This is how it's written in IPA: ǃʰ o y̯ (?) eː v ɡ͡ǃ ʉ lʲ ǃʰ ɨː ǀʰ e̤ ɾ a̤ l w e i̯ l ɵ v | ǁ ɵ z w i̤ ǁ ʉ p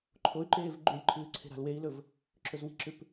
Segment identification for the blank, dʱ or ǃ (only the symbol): ǃ